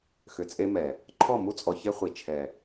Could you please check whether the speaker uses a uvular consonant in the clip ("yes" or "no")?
yes